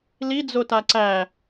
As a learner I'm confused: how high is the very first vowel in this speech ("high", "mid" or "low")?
high